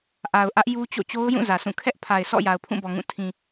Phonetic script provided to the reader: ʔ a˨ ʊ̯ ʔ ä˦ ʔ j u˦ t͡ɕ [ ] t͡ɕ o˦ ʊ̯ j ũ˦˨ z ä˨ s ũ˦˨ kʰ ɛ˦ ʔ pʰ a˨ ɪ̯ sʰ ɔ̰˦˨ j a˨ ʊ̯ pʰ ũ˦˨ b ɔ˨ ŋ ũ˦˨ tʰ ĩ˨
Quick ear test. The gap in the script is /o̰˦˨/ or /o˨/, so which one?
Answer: o̰˦˨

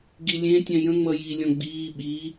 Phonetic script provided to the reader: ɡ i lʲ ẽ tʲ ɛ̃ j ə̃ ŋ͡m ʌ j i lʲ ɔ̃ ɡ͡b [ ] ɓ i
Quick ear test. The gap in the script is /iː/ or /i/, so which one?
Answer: iː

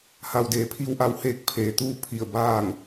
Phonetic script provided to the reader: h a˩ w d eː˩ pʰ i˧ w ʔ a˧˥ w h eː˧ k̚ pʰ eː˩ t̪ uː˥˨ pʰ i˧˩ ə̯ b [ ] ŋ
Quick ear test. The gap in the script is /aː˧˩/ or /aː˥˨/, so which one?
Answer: aː˥˨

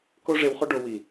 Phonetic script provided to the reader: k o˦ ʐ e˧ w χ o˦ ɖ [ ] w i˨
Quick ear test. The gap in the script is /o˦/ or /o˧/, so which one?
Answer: o˧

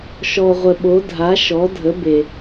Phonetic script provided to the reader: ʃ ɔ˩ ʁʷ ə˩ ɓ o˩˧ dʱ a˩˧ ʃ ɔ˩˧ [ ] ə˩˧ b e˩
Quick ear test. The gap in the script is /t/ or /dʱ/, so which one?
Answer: dʱ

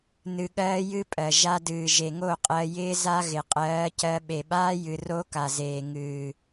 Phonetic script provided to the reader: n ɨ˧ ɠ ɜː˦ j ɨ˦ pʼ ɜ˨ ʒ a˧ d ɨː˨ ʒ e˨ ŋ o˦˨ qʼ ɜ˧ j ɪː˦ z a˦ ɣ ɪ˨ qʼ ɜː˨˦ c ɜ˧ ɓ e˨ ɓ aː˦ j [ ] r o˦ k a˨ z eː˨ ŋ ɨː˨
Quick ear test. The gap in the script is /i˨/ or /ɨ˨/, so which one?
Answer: ɨ˨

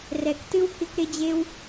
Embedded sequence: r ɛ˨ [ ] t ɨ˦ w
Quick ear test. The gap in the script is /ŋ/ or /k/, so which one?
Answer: k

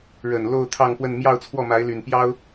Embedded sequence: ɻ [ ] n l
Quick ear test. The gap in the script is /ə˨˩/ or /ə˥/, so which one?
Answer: ə˨˩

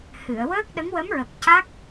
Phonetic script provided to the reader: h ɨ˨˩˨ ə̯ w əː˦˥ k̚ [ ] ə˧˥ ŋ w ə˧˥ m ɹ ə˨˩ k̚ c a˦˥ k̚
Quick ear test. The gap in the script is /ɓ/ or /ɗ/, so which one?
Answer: ɗ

